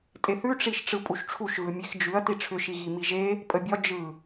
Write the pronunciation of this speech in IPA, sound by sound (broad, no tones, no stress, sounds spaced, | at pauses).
tʼ e θ ʉ ʈ͡ʂ i ʃ ʈ͡ʂ ɯ pʼ u ʃ ʈ͡ʂʰ u ʃ ɣ ɯ mʲ e x d͡ʒ ʉ ɐ̯ t i ʈ͡ʂʰ ʏ ʃ i ɣ i m i ʒ e | pʼ ə bʲ ɒ d͡ʒ ɯ